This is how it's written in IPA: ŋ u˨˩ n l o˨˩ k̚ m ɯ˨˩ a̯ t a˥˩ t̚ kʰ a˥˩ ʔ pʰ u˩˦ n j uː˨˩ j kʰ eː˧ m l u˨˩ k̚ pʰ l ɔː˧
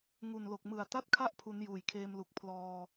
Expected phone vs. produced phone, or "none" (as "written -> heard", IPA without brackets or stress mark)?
none